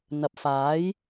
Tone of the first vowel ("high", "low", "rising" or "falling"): rising